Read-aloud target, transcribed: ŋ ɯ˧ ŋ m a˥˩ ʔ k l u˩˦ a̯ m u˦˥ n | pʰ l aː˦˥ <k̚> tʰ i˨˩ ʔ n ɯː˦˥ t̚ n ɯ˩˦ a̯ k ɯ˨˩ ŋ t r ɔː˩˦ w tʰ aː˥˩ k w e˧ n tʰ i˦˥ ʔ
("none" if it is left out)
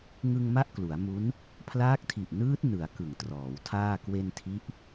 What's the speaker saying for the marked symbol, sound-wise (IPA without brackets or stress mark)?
k̚